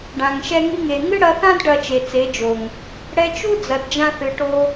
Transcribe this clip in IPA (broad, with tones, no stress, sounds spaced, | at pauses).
ɖ ã˨ ŋ ʃ ɛ˧ ŋ i˧ ŋ e˨ ŋ ɨ˦ ɽ ɐ˧ θ ã˦ d ɖ ɐ˧ t͡ʃ e˨ t͡s e˨˦ d͡ʒ o˨ ŋ | ɽ ɛ˧ t͡ʃ u˦ d͡z ɐ˨ d d͡ʒ ã˧ θ ɨ˨ ʈ o˧